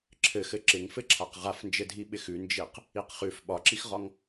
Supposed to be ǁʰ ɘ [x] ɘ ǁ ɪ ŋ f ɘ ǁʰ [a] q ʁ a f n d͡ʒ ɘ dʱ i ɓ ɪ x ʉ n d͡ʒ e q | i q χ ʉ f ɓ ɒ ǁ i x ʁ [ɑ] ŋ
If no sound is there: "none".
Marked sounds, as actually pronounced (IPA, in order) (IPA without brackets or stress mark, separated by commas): x, a, ɒ